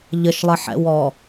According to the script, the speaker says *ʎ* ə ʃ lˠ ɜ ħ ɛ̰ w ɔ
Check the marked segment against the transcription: correct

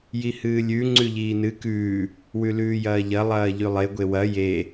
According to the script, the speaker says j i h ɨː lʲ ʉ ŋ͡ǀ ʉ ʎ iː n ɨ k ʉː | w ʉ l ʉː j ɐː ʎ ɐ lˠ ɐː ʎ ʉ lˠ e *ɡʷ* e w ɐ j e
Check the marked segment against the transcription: correct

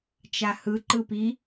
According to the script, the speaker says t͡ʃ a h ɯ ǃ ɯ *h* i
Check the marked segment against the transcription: incorrect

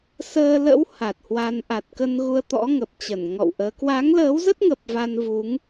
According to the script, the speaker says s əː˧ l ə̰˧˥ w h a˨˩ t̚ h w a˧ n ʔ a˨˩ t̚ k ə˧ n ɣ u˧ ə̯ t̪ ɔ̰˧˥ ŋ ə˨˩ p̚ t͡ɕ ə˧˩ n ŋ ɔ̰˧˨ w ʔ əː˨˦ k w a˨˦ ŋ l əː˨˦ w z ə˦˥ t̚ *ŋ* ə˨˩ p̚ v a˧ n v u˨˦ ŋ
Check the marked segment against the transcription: correct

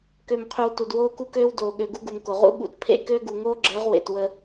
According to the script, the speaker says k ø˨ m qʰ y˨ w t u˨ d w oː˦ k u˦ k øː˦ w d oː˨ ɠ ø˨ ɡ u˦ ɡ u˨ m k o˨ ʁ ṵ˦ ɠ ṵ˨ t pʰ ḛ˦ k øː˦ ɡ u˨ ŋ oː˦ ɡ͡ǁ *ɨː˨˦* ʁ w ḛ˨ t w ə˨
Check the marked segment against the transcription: incorrect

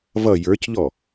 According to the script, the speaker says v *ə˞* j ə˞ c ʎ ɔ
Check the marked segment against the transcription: incorrect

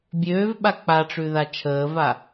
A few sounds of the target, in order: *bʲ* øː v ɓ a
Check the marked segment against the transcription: correct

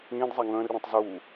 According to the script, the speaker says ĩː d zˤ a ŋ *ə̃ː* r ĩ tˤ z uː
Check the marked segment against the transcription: correct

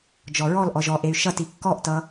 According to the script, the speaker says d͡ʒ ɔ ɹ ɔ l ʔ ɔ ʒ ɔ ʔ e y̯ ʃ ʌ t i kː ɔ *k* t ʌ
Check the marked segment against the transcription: incorrect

